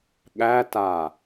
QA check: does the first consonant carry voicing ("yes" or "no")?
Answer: yes